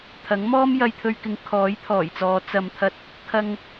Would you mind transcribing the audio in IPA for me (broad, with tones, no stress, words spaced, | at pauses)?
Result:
t̪ʰɐ˨˥ŋ mɔː˥mjɐ˧jt̪ʰɵ˧ɥkɪ˨˧ŋ kʰɔː˨˥jt̪ʰɔː˨˩jt͡sɔː˨˧ t͡sɐ˨mt̪ʰɐ˧t̚ | kʰɐ˧ŋ